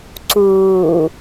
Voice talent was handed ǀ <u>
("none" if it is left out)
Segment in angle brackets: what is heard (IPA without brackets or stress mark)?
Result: uː